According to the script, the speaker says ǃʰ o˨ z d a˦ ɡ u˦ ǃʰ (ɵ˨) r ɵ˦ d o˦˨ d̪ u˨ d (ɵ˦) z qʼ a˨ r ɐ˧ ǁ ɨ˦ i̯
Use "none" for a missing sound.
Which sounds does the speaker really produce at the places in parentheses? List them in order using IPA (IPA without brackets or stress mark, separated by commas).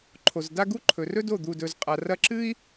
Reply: ɵ˨, ɵ˨